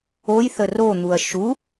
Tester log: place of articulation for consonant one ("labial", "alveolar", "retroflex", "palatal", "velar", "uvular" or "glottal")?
palatal